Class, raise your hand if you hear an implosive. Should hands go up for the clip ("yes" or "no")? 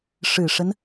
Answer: no